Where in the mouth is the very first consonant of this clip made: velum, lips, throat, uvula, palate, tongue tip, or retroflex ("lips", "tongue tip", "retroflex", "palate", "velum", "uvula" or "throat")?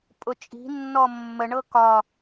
lips